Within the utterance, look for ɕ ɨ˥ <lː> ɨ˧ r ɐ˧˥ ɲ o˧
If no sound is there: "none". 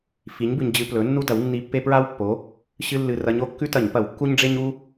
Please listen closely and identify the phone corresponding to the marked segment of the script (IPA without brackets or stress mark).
lː